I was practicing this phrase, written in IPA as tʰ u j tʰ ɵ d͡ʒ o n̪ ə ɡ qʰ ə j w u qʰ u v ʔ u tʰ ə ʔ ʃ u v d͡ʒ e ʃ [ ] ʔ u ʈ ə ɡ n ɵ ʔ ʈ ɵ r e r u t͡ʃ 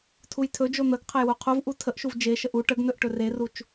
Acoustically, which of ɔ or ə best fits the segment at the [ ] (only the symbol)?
ə